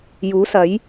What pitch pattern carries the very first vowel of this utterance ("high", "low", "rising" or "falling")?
rising